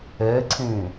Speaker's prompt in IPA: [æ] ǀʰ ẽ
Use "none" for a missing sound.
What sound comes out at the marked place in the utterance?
ɛ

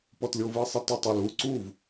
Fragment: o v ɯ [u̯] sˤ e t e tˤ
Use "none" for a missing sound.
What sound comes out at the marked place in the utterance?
i̯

